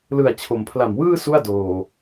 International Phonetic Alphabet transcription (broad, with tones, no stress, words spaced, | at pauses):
lɯ˨˩a̯ t͡ɕʰo˨˩m pʰla˨˩mwɯː˥˩ su˥˩a̯doː˨˩